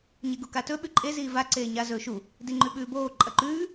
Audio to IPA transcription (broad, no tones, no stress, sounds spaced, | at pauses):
ɲ e ɡ u k a t ɵ ɓ ʉ ǃʼ e z iː v a ǀ eː ɲ a z ɵː ʃ u | d i ŋ͡ǃ ʉ ɓ ʉː b oː ǃʼ ɐ ǃ ʉː